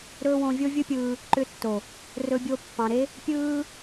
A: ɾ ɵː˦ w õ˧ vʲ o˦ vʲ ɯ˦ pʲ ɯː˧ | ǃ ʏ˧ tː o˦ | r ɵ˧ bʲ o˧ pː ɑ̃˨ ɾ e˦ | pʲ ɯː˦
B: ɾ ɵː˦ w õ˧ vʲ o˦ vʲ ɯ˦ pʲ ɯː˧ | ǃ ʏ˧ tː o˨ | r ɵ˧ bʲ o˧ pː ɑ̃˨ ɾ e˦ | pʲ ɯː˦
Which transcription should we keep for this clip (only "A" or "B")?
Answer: B